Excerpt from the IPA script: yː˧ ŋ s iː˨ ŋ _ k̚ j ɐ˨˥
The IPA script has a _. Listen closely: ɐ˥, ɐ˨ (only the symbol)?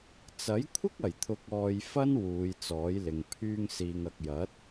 ɐ˨